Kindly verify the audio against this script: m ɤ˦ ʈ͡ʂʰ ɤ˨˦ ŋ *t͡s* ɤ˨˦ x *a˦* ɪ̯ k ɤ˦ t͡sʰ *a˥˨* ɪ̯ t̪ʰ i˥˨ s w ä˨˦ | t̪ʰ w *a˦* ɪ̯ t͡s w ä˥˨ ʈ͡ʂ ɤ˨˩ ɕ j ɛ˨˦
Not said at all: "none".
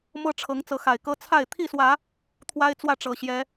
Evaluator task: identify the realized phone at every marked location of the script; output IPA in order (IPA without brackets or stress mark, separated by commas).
t͡s, a˨˩, a˥˨, a˦